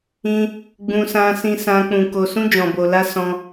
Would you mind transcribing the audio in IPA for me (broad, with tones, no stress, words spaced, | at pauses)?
ĩ˦ | ɡ͡bũ˦sã˦sĩ˦ sã˦ k͡pũ˧ko˧sũ˦ d͡ʒɔ̃˧bo˧la˦ sɔ̃˦